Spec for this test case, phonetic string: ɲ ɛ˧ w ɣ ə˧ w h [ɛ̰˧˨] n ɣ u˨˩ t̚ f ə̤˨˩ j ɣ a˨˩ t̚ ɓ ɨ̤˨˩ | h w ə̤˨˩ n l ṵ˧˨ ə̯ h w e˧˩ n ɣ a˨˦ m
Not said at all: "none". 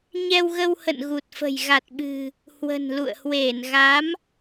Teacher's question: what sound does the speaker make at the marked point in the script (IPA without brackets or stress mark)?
ə̰˧˨